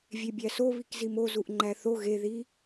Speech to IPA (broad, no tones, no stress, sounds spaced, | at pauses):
vʲ e bʲ æ s o β i k z i m o z u ʔ ŋ͡ǃ æ θ o ɣ e ð i